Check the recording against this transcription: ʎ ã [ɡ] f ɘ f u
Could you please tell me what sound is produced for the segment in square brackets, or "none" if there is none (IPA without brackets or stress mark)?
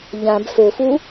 b